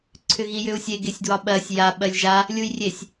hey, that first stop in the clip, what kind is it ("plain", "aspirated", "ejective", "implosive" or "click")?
click